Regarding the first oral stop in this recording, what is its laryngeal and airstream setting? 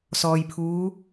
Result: aspirated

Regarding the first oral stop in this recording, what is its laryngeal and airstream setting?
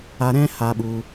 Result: implosive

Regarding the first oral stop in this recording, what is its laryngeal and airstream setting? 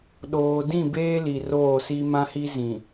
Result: implosive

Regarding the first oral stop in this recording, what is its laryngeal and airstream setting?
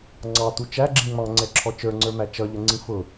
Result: click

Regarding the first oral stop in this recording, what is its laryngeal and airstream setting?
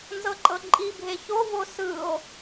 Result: click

